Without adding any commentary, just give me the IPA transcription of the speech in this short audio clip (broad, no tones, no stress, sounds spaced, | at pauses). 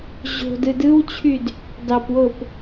ʑ o̤ d ɯ d ɯ w t͡ɕʰ y d | d ɑ p w o p